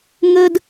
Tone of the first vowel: high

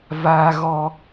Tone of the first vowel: high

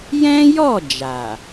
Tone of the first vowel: high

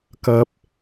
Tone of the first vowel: high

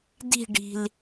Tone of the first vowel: falling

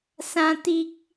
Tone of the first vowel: high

